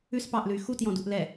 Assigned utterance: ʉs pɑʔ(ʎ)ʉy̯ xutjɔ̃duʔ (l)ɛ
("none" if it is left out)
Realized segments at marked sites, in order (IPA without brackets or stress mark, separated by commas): l, l